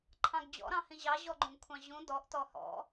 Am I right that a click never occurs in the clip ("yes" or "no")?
no